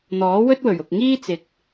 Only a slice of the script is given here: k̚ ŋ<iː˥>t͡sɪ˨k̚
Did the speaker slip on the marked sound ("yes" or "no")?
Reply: no